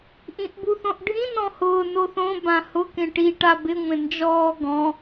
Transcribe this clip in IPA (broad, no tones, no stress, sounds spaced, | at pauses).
ʔ ĩ ʔ b u θ õ ʔ ɖʱ ĩ n ɔ̃ h ʊː n o θ õ b ã h ʊ k ẽ ʈ i ʈ a b ɪ ŋʷ ẽ n d͡ʒ ɔː ɡ ɔ̃